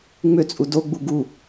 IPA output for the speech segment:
ŋ͡mʏt͡sʼu doɡ͡bu ɡu

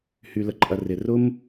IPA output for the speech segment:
hy˨lə˨ǃʼɐ˨ rɪ˨ rʊ˦m

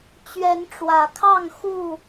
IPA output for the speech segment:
t͡ɕɥɛ˨˦nʈ͡ʂwä˨˩kʰɑ˥˨ŋ xu˥˨

